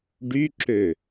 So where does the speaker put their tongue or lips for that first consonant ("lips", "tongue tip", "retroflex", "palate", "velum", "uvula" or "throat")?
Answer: retroflex